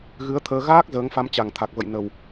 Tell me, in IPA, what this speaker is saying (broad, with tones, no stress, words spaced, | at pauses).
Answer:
ɣɨ˨˦ə̯t̪ʰəː˧ ɣaː˦˥k̚ zəː˨˦ŋfa˧m t͡ɕa˨˩ŋt̪ʰa˨˩k̚və̰˧˨j nə˨˩w